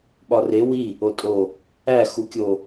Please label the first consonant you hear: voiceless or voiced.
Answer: voiced